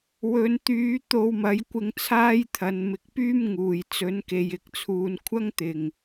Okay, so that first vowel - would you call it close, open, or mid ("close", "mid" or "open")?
mid